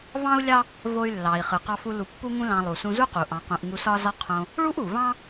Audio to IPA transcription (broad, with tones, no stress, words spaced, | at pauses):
vɑ̃˥u̯lʲɑ˥ | vo˧y̯lːɑ˩i̯ χɯ˩ qɑ˧fu˧ lu˧pːu˥ŋũ˥lɑ̃˧ lˠu˩ sũ˧zu˥qu˩ ʔɑ̃˧qũ˧ʔ ŋu˧sɒ˥zɒ˥ qʰõ˧ | ɭu˥ʔu˩vɑ̃˥